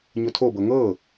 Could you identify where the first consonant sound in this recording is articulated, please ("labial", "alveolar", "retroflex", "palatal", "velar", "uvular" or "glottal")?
palatal